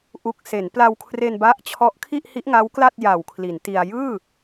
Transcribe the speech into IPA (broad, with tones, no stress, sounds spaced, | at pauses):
ʔ u˨˩ k̚ s e˩˦ n p l a˧ w kʰ r e˧ n b a˦˥ ʔ t͡ɕʰ ɔ˦˥ ʔ kʰ i˥˩ ʔ h i˦˥ ʔ ŋ a˦˥ w k l a˥˩ t̚ j a˨˩ w kʰ l i˩˦ n t i˧ a̯ j ɯː˥˩